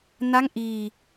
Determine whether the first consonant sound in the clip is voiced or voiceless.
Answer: voiced